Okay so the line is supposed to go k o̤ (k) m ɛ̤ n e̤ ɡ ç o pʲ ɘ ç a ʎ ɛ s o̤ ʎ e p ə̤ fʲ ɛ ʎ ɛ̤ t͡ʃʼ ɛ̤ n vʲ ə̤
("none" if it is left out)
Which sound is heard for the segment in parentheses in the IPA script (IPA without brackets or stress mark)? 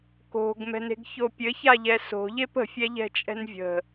ɡ